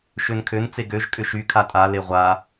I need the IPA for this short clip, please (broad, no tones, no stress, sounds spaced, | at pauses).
ʃ ø n kʰ ø n t͡s e ɡ ø ʒ kʼ ʏ ʃ y kʰ a tʼ a l e ʁʷ a